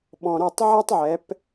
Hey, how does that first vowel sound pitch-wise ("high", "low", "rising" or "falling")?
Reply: low